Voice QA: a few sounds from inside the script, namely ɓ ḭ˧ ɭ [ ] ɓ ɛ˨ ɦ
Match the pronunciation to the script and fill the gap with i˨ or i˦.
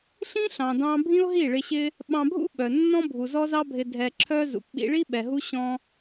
i˦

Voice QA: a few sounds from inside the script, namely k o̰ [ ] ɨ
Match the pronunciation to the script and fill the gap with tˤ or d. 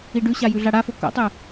tˤ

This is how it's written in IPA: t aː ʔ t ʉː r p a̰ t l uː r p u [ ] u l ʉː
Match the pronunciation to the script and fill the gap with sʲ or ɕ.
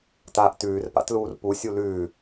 sʲ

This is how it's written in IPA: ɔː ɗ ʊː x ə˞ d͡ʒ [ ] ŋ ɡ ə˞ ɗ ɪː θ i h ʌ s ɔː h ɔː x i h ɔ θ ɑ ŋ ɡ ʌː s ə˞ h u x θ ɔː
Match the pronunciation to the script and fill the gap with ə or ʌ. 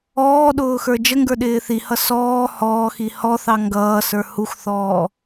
ə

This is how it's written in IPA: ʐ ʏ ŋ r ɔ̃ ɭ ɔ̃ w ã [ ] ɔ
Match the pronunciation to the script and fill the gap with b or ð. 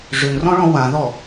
ð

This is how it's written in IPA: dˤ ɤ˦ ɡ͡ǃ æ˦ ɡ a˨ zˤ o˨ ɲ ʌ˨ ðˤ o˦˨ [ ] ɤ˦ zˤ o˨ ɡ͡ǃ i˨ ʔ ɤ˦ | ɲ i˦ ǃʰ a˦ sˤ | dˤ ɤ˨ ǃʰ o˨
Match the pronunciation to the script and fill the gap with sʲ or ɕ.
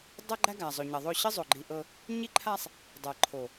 ɕ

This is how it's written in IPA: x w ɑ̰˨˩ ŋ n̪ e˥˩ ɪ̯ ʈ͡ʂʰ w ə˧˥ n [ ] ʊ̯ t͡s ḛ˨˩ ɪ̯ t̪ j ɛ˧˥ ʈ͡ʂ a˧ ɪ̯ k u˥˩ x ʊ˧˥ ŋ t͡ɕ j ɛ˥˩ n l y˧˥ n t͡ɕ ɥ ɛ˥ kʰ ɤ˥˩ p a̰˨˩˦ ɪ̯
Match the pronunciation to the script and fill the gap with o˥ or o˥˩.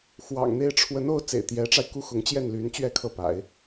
o˥˩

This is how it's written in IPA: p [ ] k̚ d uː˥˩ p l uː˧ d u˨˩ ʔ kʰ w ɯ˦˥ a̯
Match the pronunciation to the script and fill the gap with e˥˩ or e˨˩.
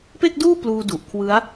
e˥˩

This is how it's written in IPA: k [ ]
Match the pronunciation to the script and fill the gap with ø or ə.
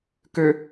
ø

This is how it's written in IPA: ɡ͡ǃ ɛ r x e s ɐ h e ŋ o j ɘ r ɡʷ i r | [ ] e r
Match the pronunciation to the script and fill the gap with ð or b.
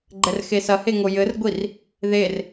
ð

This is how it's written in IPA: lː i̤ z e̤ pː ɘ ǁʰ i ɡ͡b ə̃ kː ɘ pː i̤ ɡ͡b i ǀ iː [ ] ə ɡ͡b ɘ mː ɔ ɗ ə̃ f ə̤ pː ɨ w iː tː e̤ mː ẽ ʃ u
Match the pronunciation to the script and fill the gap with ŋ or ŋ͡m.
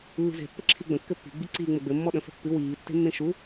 ŋ͡m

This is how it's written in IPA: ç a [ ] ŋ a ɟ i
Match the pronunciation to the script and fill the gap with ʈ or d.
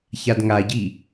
d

